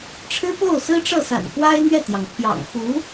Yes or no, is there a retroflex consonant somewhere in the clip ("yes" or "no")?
yes